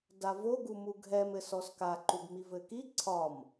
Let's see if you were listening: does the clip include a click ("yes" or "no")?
yes